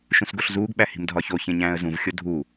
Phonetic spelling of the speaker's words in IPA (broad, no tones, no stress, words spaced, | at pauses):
ʃũsɡoɬzuːɡɓæ hi̤mdʱɒçoçẽ ɲæ̃ːə̯zũvxʲo dʱu